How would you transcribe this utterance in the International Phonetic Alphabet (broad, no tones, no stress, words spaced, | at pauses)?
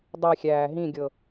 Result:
dˤixʲæː ɦĩɡʲɤ